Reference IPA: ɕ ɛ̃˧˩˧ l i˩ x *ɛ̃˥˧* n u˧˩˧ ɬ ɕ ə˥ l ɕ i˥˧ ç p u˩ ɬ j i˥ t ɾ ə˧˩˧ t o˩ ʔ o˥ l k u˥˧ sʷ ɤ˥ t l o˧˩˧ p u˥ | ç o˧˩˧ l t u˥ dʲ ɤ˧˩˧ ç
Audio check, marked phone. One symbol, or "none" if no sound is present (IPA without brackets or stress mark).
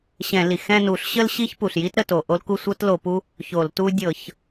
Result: ɛ̃˥˧